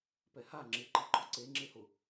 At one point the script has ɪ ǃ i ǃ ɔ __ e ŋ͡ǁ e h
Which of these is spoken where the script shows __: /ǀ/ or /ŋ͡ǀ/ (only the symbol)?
ǀ